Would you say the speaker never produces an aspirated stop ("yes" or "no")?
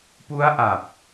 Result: yes